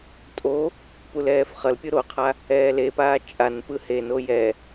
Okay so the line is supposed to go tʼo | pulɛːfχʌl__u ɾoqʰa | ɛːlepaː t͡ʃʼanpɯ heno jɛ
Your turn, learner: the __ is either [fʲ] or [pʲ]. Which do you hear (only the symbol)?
pʲ